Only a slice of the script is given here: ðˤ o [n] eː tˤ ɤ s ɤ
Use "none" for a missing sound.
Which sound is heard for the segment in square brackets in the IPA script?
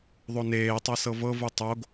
n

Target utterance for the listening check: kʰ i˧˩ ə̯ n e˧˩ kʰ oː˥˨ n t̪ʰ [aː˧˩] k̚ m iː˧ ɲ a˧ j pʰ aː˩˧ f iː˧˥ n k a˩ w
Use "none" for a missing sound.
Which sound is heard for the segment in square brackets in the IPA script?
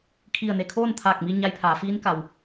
aː˧˩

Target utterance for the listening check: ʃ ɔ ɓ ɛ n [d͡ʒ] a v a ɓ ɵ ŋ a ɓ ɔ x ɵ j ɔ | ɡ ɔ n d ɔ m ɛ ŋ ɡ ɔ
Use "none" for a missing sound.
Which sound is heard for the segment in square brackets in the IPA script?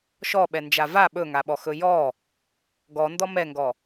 d͡ʒ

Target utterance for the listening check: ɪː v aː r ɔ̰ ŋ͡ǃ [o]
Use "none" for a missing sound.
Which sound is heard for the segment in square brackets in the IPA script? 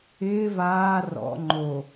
o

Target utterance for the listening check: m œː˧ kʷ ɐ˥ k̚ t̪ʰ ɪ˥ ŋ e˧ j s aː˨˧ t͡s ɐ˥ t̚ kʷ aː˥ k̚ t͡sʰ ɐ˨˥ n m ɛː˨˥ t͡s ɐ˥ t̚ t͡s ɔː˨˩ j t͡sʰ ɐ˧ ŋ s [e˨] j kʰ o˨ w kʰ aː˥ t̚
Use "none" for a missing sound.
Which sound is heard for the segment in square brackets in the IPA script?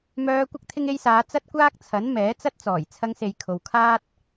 e˨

